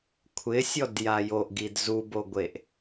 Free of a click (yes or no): yes